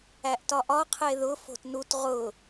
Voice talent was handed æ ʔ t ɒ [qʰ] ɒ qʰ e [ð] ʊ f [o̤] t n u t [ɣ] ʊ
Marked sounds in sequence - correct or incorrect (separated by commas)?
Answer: incorrect, correct, correct, incorrect